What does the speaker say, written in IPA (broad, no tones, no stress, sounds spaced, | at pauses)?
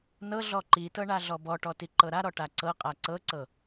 n ɤ ɮ ɔ ǃ i t ɤ ɳ a ɮ ɔ b ɔ ʈ ɔ t i ǃ ɤ ɾ a ɾ ɔ ʈ a ǀ ɤ qʼ a ǀ ɤ ǀ ɤ